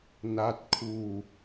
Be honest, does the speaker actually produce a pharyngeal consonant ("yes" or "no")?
no